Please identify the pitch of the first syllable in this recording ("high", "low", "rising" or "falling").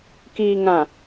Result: low